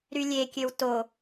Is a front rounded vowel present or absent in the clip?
present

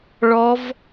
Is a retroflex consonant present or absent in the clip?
present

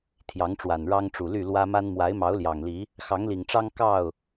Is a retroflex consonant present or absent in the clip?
present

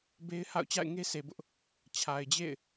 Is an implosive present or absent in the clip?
absent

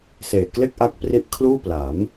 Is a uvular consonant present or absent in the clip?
absent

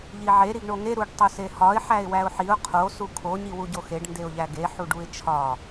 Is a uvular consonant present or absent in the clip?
present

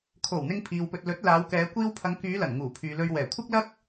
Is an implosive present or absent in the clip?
absent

